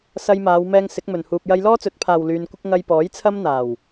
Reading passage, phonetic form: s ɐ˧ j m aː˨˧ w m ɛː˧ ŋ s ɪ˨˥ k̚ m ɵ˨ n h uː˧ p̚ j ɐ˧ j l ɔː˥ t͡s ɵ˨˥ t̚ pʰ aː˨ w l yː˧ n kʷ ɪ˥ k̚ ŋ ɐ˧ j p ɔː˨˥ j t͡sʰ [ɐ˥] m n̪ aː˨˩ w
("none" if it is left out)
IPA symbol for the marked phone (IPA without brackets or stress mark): ɐ˥